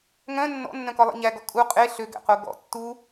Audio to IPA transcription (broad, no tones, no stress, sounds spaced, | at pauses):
ŋ œ̃ nː ɔ̰ nː œ̃ k ɔ lˠ ɛ̰ ɲ æ ɡ ɔ kʼ u qʼ e ɬ ø ɡ æ̰ q o ɡ ɔ̰ tː u